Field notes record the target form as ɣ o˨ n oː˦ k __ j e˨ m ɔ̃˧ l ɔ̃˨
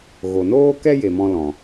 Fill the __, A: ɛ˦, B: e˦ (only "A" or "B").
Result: A